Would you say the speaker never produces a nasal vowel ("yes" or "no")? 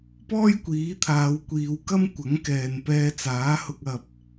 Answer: yes